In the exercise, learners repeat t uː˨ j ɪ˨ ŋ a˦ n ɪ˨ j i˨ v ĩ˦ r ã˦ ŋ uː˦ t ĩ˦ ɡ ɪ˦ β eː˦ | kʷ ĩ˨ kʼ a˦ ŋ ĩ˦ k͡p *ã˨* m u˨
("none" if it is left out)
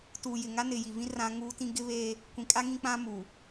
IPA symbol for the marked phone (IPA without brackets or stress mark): ã˦